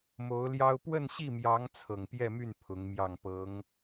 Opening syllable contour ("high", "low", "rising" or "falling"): rising